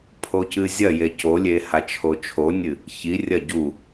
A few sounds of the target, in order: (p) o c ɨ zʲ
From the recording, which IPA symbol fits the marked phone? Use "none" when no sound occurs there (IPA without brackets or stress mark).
pʰ